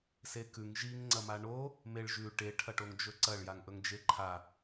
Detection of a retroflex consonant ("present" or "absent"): present